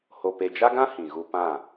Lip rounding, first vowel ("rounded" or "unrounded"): rounded